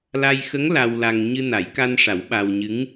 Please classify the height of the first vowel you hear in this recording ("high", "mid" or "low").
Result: low